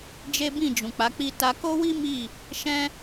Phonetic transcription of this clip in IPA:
d͡ʒ e˦ b ĩ˦˨ d͡ʒ ũ˨ k͡p a˨˦ k͡p i˦ t a˧ k o˦ w i˦ m i˦˨ | ʃ ɛ̃˦

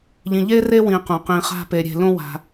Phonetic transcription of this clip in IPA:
ʎ ĩ˨ ʎ e˥ r e˥ w ĩ˨ q ũ˩ q ĩ˨ χ a̤˦ p e˨ ɾʲ e̤˨ l õ˥ w a̤˨

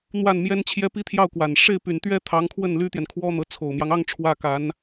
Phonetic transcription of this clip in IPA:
n̪ w a˥˩ n m j ɛ˥ n t͡ɕʰ j ɛ˥ p i˥ t̪ʰ j ɑ˥˩ ʊ̯ k w a˨˩ n ʂ e˥˩ ɪ̯ p y˨˩ n t̪ ɥ ɛ˥ t̪ʰ ɑ˧˥ ŋ kʰ w ə˥˩ n l y˥ t̪ j ɛ˨ n kʰ w ɔ˥ n̪ ɤ˧˥ t͡sʰ o˨˩ ʊ̯ m j ɑ˦ ŋ ɑ˥˧ ŋ ʈ͡ʂʰ w ä˥˩ k a˧˥ n

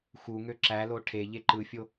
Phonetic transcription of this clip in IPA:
x u ŋ ø ǁ æ l o ʈʰ e ʎ e ǃ ɯ fʲ o

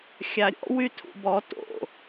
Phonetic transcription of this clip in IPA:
xʲ a ɾʲ ɔ̰ w y tʰ ṵ b ɔ t o̰

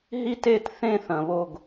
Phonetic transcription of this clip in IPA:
ɦ i˥˨ t e˥˨ t θ ẽ˥˨ θ ɐ̃˩ β o˧˩ ɡ

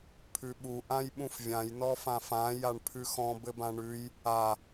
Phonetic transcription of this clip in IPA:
pʰ ʉ ɓ u ʔ ã j ɓ ũ f vʲ ã j n ɔ f ã f ã j a ɳ pʰ ʉ x ɔ̃ b ɘ b ã ɳ ʉ j | a

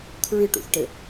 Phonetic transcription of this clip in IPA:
kʰ ɹ ɨ ʈ ṵ θ ʈ ɘ

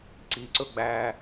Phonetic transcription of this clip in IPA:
ǀ i ǀ ɵ ɡ͡b æ

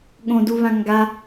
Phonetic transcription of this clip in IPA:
ɠ õ d u β ã ŋ ɡ a

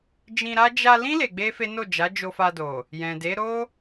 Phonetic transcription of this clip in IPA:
d͡ʒ ĩ˧ ɾ a˦ d͡ʒ a˧ l ĩ˦ l e˧ ɡ͡b e˦ f e˦ n o˦˨ d͡ʒ a˨˦ d͡ʒ o˧ f a˧ d o˨ | j ɛ̃˨ d e˨˦ ɾ o˦

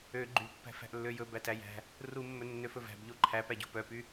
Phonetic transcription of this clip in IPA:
ø ɡ͡ǃ y pː æ̤ f æ̤ ʔ lː ø j ɵ b æ t æ j æ̤ | r u mː ɵ nː ø f ɵ v æ̤ b ʎ o ǃʰ æ p æ ɟ o̤ p œ p y

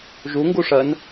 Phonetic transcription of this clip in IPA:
ʒ u ŋ ɡ u ʂ ɜ n

